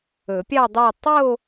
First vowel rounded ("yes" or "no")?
yes